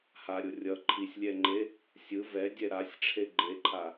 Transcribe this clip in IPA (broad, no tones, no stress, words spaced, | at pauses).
haɾʲo rʲʌ ǃʰisʲlʲɛŋ͡ǃe | sʲɯ vɛdʲɛ ɾasʲʈ͡ʂʰe ɡ͡ǃeǃʰa